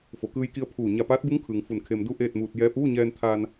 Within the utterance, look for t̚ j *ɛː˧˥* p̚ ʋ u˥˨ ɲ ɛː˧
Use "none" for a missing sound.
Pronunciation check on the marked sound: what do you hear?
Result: ɛː˧˥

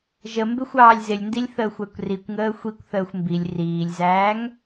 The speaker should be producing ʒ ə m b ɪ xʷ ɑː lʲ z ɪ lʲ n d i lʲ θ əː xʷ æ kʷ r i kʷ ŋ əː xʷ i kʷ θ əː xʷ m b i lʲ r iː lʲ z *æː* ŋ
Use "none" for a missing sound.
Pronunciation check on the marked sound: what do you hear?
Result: æː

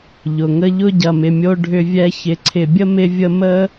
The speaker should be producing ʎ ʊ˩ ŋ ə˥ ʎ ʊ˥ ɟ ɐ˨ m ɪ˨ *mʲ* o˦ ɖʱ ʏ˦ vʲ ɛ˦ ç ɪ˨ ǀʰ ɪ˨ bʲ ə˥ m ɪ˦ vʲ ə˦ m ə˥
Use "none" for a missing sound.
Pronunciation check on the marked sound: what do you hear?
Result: mʲ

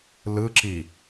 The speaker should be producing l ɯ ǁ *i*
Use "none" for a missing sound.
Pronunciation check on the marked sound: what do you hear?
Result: i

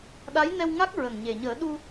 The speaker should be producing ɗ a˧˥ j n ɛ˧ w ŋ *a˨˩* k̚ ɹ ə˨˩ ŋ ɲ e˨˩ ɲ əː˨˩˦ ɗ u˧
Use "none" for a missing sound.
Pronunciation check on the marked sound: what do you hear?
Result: a˦˥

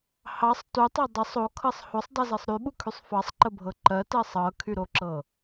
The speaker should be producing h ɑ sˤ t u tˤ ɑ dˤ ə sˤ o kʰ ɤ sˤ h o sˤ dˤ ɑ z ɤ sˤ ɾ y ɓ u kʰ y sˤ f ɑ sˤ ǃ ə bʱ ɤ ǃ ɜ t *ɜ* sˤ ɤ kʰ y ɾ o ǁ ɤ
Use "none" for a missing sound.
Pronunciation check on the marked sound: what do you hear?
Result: ɜ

